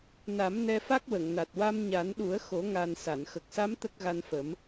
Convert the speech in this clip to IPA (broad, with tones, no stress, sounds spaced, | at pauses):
n a˨˩˦ m n ɛ˧ f a˦˥ k̚ w ə˨˩˨ ŋ n a˨˩ t̚ w a˧ m ɲ a˨˩˦ n ɗ u˨˩˦ ə̯ x o˨˩˦ ŋ a˨˩ n s a˨˩˨ n x ə˨˩ k̚ s a˧˥ m t̪ ə˦˥ k̚ ɣ a˧ n f ə˨˩˦ m